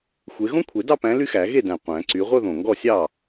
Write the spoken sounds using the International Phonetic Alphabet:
xʷe˨˦ ɣõ˥kʷʰe˨˩˦dɑ˥˧pæ̃˨˦ ly˥xæ˨˩˦ ɣe˥˩dæ̃˨˩ qʷæ̃˨˩˦ǀy˨˦ ʁʷœ˥˧ðõ˨˩ŋɡɔ˥˩sʲɑ˥˩

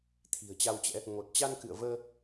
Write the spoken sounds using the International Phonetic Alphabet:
t̪ʰi̤˨˩ə̯t͡ɕa˧wt͡ɕɛ̰˧˥ | ŋo˨˩t̚t͡ɕa˧n kɨ̰˧˨ə̯vəː˧

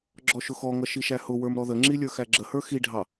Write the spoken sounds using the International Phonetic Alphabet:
ɡ͡ǁɔʃʊxɔŋʌ ʃiʃæhʊwə˞m ɾɔðəŋ͡ǁi lʲə˞xæɡ͡ǁəhə˞ xiɖʱɑ

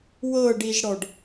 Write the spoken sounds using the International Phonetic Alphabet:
wɤɖiʒɽɔɖ

